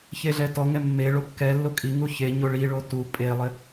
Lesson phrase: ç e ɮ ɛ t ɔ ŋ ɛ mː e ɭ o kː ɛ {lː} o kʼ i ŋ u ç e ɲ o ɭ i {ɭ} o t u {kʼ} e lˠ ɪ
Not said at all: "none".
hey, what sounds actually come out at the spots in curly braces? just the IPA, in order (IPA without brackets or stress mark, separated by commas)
lː, ɭ, pʼ